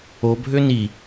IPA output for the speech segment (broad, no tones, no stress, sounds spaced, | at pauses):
o bʱ ø n i